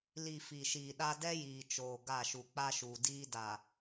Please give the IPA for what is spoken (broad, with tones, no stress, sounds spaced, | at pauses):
l i˨ f i˨ ʃ iː˨ ɗ a˦ d ɛ˦ j iː˨ t͡ʃ oː˨ ɡ a˦˨ ʃ u˨ k͡p a˦ ʃ uː˨ d iː˦ d a˨